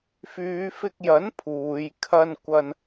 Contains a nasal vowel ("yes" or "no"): no